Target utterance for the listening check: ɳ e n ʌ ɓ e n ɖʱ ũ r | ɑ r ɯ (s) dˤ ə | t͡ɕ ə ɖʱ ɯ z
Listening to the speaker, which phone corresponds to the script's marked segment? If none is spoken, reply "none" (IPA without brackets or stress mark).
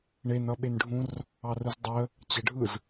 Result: z